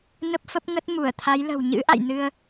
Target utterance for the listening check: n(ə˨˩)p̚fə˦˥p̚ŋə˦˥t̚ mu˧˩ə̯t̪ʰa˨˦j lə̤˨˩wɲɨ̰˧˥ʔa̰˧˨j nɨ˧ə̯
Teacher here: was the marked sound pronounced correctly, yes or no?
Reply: no